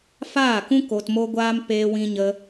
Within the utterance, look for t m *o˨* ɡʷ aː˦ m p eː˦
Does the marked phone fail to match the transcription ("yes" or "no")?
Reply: yes